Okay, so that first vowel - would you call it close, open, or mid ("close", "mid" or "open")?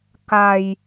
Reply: open